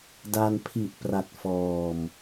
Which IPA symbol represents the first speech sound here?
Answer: d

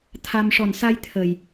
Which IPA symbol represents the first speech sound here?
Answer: t̪ʰ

